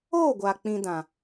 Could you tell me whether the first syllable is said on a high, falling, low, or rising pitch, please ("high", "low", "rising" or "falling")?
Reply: falling